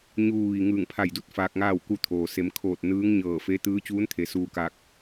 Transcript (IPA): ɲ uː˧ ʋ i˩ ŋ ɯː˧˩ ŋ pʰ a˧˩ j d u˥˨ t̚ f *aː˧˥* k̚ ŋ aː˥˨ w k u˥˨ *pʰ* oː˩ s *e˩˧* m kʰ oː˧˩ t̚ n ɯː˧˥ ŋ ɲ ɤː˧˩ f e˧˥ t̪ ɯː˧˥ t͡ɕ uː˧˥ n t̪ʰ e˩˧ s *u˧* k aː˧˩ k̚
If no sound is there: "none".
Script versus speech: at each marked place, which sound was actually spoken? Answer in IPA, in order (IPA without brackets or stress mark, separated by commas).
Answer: aː˧, t̪ʰ, e˩˧, uː˧